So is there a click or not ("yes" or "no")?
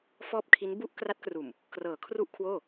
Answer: no